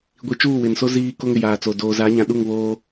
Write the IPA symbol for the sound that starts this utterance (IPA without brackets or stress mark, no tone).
ɡʷ